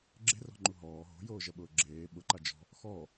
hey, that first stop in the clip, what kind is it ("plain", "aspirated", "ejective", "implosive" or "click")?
click